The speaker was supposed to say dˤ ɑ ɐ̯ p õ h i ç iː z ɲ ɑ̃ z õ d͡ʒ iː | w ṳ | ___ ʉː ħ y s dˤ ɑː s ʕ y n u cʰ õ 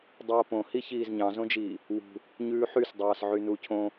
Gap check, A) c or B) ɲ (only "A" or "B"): B